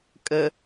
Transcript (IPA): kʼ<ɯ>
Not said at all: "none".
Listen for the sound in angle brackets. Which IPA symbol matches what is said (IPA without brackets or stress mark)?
ə